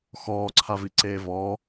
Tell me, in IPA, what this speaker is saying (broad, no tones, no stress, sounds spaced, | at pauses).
x ɔː ǀʰ a v i ǀ eː v ɔ